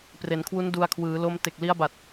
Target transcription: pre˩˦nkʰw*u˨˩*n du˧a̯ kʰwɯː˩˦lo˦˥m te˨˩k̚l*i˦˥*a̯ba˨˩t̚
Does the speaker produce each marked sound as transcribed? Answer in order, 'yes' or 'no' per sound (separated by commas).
no, yes